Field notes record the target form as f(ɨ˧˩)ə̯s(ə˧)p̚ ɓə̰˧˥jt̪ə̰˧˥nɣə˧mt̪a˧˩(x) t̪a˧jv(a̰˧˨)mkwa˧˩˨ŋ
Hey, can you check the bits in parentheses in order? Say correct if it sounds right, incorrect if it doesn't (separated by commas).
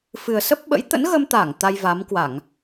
incorrect, incorrect, incorrect, incorrect